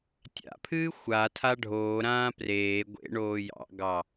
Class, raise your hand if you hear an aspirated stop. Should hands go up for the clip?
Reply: yes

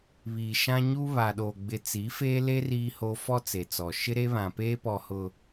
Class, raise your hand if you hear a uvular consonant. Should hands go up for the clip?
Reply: no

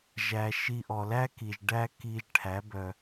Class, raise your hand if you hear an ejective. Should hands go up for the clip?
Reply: no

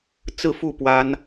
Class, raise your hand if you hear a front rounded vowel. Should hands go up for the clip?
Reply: no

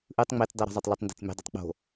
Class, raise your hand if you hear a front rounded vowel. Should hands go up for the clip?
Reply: yes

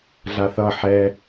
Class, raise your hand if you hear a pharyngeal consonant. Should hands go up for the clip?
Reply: yes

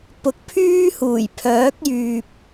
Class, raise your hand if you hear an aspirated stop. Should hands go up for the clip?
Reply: yes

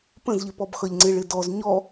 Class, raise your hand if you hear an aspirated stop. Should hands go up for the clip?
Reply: no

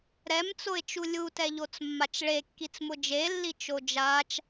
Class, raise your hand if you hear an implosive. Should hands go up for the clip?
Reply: no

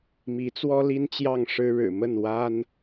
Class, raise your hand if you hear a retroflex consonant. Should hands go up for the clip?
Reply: yes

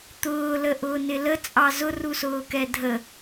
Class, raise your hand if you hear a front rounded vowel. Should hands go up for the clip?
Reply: no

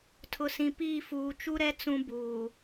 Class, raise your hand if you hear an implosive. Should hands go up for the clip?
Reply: no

